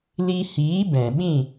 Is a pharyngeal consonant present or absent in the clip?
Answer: absent